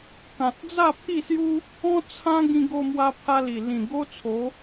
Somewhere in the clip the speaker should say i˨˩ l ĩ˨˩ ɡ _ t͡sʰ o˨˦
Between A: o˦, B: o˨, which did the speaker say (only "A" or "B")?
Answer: A